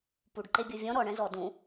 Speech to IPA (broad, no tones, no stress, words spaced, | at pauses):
puɖ ǃebʲɤvʲɔ̃ ɾɔ ɳɛ̃zɔ dũ